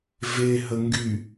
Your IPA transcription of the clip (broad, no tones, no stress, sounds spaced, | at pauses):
v e ɦ ə ŋ ɡ y